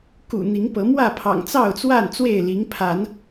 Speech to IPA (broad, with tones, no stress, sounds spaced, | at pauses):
k ṵ˨˩ n̪ i˨˦ ŋ p ɤ˨˦ m w ä˥˨ pʰ ɑ̰˨˩ ŋ t͡s ɑ˥˨ ʊ̯ t͡s w a˥˨ n t͡s w e˥˨ ɪ̯ l i˨˦ ŋ pʰ a˨˦ n